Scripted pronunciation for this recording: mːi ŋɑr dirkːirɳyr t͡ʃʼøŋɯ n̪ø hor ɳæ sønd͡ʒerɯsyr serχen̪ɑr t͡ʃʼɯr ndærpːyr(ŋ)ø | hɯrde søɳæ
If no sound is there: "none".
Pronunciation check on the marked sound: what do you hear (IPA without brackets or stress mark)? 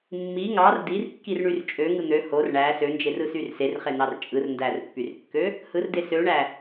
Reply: kː